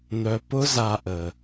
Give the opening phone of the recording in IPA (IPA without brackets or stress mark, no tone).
n̪